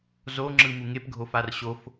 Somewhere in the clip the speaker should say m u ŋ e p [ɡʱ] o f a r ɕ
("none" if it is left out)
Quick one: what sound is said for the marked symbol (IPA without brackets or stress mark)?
ɡʱ